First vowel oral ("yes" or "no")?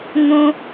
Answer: no